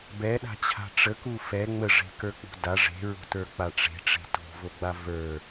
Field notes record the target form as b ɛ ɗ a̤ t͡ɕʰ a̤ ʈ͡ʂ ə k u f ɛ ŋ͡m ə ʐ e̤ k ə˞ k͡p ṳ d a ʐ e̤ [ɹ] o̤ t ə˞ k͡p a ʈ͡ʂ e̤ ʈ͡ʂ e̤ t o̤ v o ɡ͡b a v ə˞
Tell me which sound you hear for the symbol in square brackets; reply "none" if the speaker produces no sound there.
ɹ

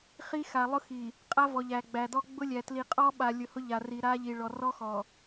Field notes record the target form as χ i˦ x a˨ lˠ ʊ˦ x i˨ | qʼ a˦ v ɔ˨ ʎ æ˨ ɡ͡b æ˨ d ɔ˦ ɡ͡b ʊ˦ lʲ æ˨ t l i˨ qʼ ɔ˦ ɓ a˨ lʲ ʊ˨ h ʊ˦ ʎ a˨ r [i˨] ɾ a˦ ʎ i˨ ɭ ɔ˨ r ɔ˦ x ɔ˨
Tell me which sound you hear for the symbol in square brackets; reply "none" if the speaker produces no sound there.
i˨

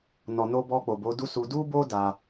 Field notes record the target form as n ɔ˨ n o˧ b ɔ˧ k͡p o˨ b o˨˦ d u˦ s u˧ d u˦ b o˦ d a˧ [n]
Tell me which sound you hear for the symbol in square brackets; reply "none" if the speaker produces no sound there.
none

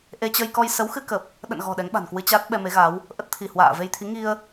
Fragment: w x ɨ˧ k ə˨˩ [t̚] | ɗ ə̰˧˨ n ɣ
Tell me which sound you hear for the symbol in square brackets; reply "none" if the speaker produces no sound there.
p̚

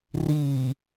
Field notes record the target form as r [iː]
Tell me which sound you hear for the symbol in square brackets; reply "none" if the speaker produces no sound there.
iː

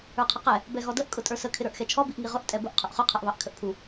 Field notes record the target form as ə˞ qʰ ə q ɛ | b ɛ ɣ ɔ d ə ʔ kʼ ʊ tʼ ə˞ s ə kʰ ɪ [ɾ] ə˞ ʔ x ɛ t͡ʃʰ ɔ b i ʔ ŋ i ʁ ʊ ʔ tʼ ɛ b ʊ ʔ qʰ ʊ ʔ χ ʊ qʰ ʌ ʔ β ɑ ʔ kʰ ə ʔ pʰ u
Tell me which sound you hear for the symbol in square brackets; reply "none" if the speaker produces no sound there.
ɾ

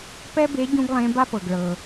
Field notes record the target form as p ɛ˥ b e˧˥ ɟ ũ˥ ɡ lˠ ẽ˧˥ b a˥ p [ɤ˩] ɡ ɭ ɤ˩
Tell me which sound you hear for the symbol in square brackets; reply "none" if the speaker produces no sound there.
ɤ˩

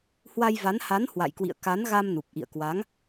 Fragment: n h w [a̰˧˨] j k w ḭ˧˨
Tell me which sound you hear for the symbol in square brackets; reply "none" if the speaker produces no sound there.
a̰˧˨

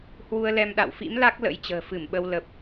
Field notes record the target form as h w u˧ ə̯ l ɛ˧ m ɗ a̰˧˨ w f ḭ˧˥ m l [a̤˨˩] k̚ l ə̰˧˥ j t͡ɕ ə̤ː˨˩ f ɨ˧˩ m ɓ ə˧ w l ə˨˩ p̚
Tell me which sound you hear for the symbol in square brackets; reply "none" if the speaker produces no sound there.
a˦˥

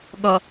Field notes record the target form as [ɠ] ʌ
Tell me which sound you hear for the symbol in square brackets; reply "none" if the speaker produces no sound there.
ɠ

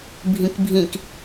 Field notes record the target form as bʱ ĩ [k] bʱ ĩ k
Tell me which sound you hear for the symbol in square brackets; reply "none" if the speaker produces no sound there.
k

